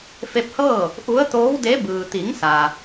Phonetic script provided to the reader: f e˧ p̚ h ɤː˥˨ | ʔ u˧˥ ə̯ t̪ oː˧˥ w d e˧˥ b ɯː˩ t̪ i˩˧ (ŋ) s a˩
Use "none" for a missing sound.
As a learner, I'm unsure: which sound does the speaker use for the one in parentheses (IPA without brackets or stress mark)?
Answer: ŋ